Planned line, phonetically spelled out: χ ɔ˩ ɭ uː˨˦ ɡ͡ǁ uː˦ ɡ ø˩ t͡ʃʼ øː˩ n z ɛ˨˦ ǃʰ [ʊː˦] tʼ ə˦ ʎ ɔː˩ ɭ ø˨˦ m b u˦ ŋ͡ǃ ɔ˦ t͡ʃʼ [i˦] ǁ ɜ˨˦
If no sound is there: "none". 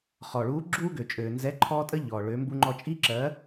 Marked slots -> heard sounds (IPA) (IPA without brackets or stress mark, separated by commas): ɔː˦, i˦